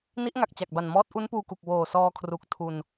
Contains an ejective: no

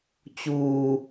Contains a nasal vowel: no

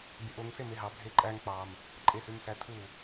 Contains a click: yes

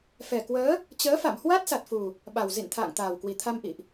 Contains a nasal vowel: no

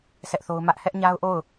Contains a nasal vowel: no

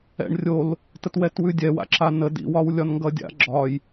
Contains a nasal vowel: no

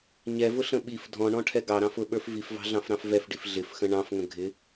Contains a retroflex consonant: yes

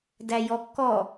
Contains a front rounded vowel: no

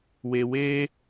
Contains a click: no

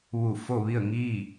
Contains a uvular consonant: no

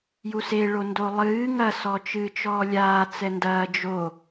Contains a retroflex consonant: yes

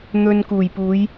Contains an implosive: no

